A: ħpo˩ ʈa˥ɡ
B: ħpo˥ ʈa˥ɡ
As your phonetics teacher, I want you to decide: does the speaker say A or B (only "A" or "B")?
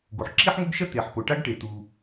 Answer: A